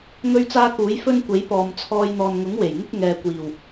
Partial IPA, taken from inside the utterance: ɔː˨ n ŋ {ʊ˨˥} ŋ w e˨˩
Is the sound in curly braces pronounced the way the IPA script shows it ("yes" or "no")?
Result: yes